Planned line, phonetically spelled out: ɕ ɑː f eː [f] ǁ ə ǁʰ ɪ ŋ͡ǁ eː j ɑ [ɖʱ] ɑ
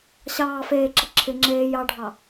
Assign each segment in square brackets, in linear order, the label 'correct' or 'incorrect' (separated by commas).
incorrect, correct